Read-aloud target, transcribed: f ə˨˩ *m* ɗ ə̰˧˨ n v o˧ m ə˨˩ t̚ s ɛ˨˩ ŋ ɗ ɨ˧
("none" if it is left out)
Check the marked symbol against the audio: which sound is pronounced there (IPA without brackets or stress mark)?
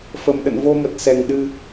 m